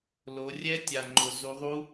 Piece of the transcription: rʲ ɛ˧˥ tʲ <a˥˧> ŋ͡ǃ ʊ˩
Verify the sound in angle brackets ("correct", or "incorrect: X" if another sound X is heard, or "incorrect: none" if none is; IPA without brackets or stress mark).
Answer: incorrect: a˩